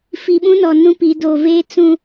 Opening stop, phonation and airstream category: implosive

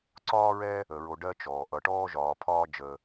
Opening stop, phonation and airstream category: click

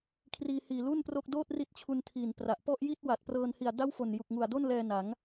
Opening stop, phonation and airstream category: aspirated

